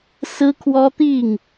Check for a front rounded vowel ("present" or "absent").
absent